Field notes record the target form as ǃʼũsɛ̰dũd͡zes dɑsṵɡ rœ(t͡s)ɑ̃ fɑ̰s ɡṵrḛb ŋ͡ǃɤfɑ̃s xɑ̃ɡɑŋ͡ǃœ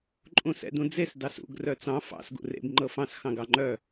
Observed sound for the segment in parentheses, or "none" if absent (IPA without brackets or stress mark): t͡s